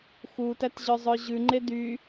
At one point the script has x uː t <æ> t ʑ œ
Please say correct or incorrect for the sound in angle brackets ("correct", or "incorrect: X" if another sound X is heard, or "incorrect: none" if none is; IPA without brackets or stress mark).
correct